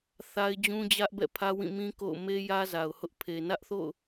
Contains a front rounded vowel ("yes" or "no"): no